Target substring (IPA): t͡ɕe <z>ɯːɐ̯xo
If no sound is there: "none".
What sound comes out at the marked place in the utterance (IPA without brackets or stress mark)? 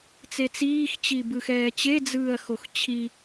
d͡z